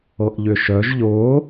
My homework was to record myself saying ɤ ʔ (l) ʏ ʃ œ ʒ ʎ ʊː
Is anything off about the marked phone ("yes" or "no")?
yes